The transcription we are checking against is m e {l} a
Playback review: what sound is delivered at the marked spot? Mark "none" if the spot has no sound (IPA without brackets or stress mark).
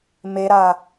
ɾ